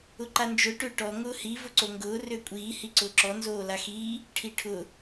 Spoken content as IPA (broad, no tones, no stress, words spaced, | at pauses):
ʊǃand͡ʒʊ ʈøʈɔ ŋʊːhi vʊǀoŋɡʊː røkʷʼiː hiǀʊːǁɔ nzoːlaxiː | ʈʰiʈʰʊ